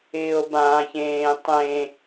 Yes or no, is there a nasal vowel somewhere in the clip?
yes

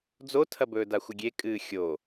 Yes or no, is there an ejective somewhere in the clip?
yes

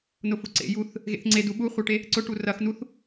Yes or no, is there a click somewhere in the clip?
yes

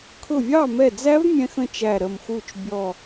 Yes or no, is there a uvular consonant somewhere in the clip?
no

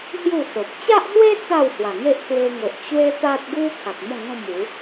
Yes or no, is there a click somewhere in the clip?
no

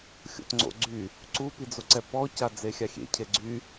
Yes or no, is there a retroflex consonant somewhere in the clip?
no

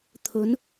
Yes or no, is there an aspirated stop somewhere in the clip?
yes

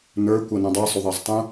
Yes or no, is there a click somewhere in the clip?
no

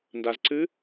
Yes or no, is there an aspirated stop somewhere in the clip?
no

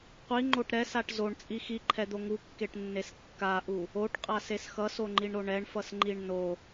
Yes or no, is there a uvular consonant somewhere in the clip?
yes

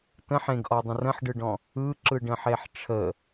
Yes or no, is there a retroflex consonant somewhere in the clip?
yes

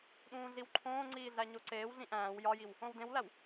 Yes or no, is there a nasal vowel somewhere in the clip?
yes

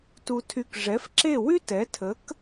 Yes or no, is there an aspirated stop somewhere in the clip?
yes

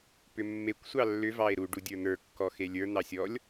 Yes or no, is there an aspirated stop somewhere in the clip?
no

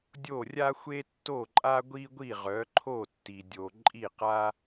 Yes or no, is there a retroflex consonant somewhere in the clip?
no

